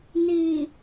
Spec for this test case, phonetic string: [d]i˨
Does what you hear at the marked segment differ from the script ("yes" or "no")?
yes